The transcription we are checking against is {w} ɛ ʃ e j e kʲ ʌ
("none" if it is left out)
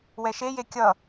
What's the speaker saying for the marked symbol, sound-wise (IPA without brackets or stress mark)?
w